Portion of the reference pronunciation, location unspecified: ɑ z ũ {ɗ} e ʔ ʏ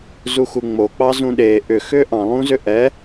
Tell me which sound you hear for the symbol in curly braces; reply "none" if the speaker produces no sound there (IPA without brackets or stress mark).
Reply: ɗ